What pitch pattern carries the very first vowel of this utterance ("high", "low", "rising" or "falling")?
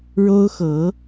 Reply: high